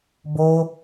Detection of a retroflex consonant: absent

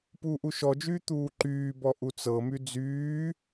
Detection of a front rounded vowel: present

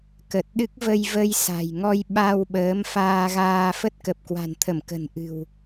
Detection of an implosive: present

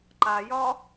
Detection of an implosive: absent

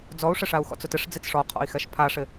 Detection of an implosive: absent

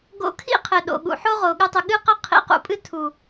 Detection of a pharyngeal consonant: present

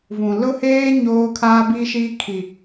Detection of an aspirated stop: present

